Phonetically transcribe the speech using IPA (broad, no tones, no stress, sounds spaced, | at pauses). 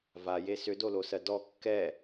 v a j e s ʏ d o l o s ɜ d ɔ kː ɛ